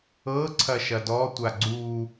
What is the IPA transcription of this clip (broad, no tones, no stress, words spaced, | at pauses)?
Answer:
ɤ ǀʰɐʃɐdɔ tʷaɡ͡ǀu